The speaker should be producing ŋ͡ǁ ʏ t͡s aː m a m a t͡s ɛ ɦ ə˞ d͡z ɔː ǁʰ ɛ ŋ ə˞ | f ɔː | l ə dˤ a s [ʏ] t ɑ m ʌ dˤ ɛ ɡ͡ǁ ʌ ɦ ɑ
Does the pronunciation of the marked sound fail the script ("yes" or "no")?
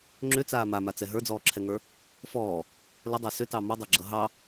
no